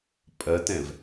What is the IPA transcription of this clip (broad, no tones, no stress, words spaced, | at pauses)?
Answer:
pʼɜtɛ̃v